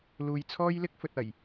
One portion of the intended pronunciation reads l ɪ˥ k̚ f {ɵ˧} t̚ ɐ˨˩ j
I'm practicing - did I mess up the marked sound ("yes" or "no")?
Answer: yes